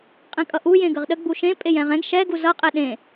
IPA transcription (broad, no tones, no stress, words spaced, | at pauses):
qʼɛ̃kʼʌʔu jẽɡəʁɗə ɡ͡buʃẽ pʼejɛ̃ʁɛ̃ɡ ʃɛ ɡuzʌ qʼɛɗẽ